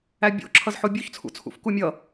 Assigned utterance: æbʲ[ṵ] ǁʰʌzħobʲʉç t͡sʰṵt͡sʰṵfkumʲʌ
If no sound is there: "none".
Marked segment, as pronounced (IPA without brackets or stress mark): o̰